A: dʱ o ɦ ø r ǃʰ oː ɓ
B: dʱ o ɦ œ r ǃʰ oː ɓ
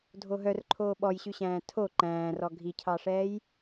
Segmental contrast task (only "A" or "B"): B